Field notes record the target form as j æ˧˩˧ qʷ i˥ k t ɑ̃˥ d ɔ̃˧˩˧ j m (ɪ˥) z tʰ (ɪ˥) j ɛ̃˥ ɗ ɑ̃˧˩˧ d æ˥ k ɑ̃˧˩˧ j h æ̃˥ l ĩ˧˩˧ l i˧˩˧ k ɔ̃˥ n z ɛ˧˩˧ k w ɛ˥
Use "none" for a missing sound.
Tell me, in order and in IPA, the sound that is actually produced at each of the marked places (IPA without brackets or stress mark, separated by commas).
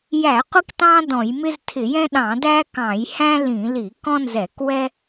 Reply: ɪ˥, ɪ˧˩˧